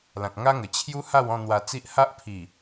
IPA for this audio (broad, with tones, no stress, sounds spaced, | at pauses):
l ã˨ k̚ ŋ a˦ ŋ ə˨˩ t͡ɕʰ j u˦ h a˥˧ w ɔ̃˥˧ n̪ w a˧ t͡s i˦ ʔ h a˦ ʔ pʰ i˨˩